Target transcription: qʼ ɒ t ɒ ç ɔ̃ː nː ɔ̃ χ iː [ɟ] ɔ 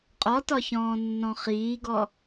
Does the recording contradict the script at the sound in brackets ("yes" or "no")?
yes